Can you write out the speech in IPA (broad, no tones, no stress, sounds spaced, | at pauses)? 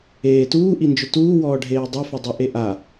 eː t uː ʔ i n d͡ʒ ʊ t uː w ɔː ɖʱ eː dˤ o f ɪ dˤ a ʔ e ʔ a